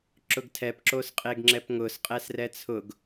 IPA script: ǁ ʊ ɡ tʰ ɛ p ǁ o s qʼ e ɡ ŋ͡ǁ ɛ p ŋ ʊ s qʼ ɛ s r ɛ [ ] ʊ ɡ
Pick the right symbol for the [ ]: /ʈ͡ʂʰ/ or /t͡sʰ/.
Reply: t͡sʰ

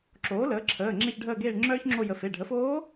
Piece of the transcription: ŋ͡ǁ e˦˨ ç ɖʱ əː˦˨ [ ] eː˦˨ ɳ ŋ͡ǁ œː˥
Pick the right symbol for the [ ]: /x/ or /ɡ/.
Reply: ɡ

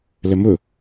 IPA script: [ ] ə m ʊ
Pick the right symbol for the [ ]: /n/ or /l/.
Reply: l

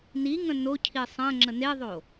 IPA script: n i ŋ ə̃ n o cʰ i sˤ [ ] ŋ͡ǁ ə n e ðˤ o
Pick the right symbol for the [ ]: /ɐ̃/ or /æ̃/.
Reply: ɐ̃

